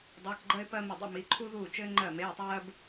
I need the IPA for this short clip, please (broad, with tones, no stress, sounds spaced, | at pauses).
dˤ eː˧˥˧ k ɡ͡ǃ ɜ˥ ɪ̯ p ɜ˥ m ɘ˥˨ dˤ ḛ˥ m i˧˥˧ ǃʰ u˥ ð uː˥˨ t͡ʃ ɘː˥ ŋ͡ǃ ɜ˥˨ m eː˧˥˧ tˤ ɜː˥ b